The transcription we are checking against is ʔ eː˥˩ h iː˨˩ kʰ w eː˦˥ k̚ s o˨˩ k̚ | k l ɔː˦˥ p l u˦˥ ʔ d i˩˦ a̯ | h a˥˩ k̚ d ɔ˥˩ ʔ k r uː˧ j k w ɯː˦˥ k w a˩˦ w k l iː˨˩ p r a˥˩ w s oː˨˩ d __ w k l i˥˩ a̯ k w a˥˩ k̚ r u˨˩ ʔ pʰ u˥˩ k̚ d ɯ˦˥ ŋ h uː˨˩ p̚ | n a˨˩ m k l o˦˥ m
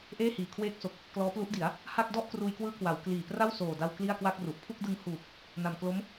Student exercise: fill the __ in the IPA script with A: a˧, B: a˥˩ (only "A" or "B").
A